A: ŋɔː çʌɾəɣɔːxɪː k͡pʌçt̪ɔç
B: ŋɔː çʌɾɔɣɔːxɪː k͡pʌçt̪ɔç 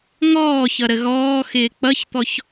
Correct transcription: A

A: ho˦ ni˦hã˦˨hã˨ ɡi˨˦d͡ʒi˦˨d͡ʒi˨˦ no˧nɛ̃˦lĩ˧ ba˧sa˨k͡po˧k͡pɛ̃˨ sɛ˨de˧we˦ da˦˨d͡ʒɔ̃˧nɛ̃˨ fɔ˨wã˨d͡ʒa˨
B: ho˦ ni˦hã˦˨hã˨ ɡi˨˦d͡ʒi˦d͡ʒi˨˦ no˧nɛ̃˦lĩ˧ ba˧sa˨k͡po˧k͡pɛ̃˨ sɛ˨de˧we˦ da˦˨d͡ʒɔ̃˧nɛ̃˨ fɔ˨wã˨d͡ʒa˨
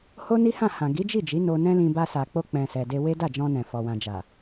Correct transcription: A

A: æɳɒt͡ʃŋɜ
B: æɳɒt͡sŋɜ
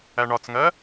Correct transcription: B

